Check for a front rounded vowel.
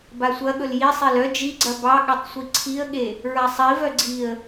present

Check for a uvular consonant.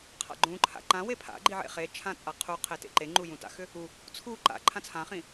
present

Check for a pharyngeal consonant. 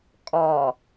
absent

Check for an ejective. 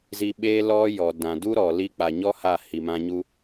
absent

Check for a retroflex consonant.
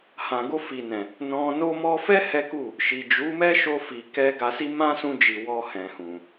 absent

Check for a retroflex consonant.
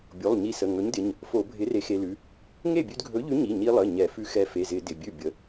absent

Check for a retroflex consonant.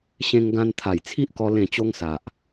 absent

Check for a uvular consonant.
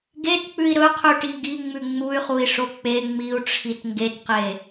present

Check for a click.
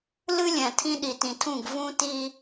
absent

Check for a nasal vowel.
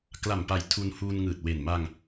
absent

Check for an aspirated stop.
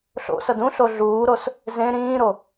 absent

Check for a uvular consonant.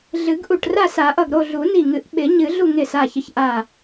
absent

